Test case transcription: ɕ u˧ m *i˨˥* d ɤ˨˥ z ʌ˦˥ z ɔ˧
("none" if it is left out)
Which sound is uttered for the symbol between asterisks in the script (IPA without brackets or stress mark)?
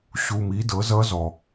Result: i˨˥